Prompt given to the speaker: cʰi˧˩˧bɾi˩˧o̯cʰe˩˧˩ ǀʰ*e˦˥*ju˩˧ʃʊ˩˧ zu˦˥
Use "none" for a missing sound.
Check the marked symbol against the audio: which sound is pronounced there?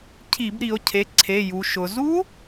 e˩˧˩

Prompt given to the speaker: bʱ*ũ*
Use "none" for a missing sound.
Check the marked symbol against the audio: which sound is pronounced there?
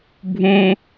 ũ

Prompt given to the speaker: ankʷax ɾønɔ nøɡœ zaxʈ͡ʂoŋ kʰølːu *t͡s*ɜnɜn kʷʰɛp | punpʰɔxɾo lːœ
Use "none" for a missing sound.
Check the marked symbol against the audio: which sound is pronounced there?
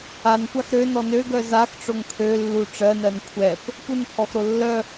ʈ͡ʂ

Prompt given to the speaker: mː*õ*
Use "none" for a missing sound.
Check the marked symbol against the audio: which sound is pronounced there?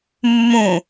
ũ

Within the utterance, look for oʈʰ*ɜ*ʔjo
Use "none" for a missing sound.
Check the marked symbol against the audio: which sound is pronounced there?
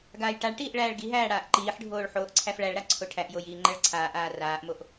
æ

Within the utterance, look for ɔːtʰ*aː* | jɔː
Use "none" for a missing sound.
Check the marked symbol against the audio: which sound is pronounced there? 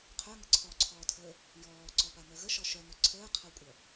əː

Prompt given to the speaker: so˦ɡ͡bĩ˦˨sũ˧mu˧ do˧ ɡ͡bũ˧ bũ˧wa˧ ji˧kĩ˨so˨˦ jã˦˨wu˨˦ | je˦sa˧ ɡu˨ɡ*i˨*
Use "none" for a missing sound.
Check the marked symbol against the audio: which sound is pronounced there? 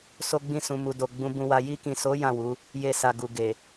e˨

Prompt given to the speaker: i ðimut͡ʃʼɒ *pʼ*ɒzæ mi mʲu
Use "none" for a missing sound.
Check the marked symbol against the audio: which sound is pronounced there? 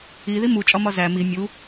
m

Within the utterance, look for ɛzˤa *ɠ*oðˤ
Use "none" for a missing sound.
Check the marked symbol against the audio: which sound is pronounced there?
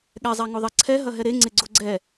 ŋ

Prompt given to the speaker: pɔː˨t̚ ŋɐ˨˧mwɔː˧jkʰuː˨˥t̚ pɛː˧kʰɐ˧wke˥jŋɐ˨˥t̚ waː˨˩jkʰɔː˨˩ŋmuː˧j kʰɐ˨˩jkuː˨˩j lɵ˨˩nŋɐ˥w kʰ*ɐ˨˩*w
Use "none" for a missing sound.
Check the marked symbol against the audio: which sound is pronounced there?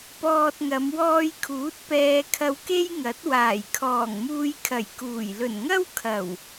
ɐ˨˩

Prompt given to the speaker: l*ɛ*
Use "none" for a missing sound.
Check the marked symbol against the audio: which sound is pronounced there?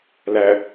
æ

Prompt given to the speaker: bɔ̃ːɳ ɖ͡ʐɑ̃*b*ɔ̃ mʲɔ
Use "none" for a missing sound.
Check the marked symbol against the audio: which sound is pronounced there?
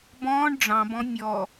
b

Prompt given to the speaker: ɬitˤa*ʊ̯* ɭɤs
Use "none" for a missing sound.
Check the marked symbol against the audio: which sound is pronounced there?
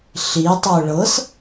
ʊ̯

